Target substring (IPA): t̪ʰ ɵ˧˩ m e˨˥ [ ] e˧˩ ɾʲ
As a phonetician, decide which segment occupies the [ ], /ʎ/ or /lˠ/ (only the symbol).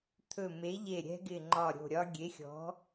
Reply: ʎ